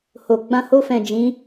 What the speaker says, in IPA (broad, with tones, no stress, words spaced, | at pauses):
ho˨ ɡ͡bã˧ho˧fɛ̃˨ d͡ʒĩ˨˦